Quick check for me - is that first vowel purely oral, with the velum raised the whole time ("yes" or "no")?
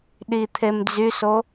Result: yes